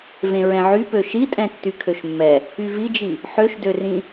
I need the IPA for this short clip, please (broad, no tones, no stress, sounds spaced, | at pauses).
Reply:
v ẽ ɹ ɛ̃ ʕ y p ø ʃ i tʼ ɛ̃ tː y kʰ ø ʃ mː ɛ | y v i d͡ʒ i | ħ ø ʃ d ø r ĩ